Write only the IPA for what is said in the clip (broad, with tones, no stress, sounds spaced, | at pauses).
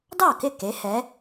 d ɑ˥˩ k ɪ˥˩ k e˩˥ h ɛ˩˥